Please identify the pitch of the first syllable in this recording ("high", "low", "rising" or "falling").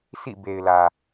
falling